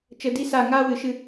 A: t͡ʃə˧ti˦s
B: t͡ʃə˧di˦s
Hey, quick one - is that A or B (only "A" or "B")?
B